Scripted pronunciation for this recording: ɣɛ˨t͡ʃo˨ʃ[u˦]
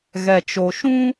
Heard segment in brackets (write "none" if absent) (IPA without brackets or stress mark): ũ˦